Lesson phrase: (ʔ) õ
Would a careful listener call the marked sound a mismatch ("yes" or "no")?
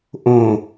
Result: no